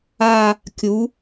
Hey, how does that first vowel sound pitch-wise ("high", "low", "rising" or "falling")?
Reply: falling